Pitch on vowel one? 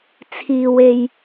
low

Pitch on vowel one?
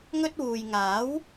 high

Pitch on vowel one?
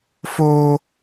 high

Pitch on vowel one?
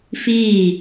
falling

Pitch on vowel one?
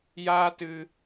high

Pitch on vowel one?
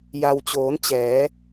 low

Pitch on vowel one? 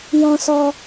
high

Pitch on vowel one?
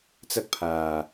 high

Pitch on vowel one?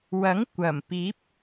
rising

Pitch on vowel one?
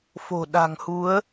low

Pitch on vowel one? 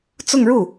falling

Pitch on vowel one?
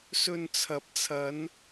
low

